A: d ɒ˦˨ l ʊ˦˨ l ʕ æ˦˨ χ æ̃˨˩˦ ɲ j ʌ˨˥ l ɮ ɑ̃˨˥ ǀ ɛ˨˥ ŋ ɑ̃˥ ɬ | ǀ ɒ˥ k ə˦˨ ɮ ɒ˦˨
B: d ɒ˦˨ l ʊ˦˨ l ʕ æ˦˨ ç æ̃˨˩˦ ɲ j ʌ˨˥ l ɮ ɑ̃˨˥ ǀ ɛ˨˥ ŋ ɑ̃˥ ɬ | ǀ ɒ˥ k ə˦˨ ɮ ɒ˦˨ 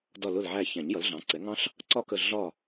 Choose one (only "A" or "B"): B